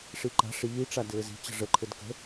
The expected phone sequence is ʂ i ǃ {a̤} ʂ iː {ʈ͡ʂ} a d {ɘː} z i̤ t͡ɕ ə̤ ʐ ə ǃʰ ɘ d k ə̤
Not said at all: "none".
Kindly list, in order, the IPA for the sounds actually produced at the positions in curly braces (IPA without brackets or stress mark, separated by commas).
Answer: a̤, ʈ͡ʂ, ɘː